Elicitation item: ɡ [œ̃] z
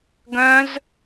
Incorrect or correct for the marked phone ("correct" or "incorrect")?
correct